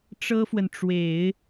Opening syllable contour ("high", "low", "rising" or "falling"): high